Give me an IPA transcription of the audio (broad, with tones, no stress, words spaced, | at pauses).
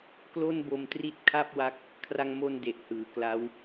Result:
klo˥˩nbo˧mtri˥˩t̚ kʰa˥˩p̚wa˦˥k̚ | kʰra˧ŋmo˧n de˨˩ʔhɯː˩˦kla˦˥w